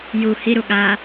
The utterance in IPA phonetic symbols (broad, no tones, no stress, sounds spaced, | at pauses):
j u h i ɾ u ɠ a